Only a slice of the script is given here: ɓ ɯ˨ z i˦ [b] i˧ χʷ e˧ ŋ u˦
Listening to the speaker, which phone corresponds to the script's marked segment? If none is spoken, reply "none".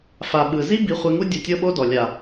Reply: b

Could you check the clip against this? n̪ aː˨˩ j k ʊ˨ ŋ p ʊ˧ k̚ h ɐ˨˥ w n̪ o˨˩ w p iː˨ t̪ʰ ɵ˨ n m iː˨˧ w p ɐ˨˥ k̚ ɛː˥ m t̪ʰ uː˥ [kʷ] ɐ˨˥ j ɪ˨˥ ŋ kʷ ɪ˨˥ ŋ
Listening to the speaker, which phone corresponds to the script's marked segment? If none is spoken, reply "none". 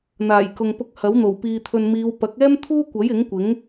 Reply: kʷ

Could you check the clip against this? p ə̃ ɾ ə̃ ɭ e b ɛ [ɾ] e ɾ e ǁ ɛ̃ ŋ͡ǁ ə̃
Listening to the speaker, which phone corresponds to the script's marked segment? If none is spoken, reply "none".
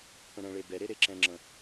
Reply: ɾ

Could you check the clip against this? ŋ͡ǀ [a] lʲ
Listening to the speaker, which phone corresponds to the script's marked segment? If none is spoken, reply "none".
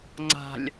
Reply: a̤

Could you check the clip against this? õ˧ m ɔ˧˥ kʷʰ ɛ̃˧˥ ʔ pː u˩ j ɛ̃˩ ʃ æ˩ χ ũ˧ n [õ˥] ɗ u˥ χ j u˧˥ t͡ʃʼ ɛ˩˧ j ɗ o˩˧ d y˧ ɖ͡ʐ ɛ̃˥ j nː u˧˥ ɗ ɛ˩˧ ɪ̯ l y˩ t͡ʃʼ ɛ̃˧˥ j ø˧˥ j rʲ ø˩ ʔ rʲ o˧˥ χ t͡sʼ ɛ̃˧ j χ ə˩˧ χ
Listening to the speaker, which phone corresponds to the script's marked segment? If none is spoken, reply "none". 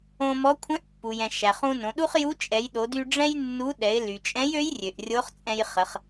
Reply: õ˩˧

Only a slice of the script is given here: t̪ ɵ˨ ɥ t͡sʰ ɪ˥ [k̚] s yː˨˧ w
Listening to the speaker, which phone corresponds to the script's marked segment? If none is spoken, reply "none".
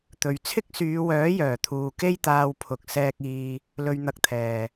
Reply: k̚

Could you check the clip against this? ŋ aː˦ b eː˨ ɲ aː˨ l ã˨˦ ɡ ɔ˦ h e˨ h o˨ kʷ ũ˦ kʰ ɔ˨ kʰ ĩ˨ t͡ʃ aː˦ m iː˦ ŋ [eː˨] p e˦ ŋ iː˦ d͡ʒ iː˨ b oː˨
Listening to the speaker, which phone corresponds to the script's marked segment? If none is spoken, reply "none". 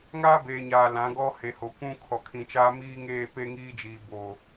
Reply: eː˦˨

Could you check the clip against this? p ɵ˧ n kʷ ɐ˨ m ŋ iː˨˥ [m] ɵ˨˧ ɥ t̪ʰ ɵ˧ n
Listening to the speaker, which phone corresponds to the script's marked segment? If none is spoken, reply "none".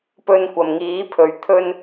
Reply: pʰ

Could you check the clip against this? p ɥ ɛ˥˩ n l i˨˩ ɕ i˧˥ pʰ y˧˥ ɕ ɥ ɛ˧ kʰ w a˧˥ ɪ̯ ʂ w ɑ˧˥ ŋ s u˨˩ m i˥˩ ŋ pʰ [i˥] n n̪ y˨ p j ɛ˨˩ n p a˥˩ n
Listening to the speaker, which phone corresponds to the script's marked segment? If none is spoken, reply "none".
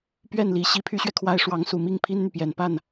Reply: i˥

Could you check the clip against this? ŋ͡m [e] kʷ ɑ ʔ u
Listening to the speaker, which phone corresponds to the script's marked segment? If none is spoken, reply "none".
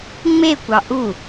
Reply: e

